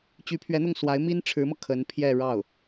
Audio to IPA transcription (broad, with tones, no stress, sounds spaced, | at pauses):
t͡ɕ y˧˥ pʰ ɥ ɛ˧˥ n̪ ʊ˥˩ ŋ s w a˧˥ ɪ̯ m i˥ n ʈ͡ʂʰ ɻ̩˧˥ m ɤ˧ kʰ ə˧˥ n pʰ j ɛ˥˧ ɻ ɑ˥˩ ʊ̯